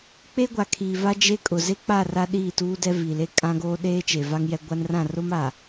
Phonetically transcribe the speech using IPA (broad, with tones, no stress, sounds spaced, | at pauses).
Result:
k͡p e˦ ɡʷ a˨ kʰ i˨ v a˦ d͡ʒ e˦ kʼ ʊ˨ z e˦ k͡p a˦˨ r a˦ ɗ iː˦˨ t uː˦ d ɛ˦ v i˨ l e˦ kʼ ã˦ ɡ oː˦ ɗ eː˦ t͡ʃ e˨ v a˦ ŋ j ɛ˦ ɡʷ a˦ n r ã˦˨ r ʊ˦ m a˨